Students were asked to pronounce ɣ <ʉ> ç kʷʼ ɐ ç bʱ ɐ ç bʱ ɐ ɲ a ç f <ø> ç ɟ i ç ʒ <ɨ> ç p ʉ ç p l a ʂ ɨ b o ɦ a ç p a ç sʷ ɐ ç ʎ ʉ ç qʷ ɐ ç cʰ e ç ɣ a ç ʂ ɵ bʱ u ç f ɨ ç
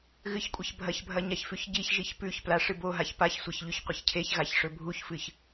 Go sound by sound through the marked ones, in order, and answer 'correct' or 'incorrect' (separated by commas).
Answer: incorrect, incorrect, incorrect